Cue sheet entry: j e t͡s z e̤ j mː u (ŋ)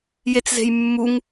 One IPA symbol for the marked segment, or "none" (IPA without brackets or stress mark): ŋ